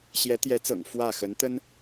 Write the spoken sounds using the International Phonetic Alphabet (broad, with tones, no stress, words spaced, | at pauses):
ɕjɛ˧˥t̪jɛ˧˥t͡sɤ̰˨˩ŋ fwä˥˩ xə˧˥nt̪ə˥n